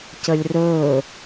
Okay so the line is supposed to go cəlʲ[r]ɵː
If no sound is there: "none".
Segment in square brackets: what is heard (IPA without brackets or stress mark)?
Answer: r